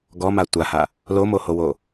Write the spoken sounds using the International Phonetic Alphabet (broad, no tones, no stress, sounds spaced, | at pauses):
ɡ ɔ m a tʷ a h a | l o m o h o w o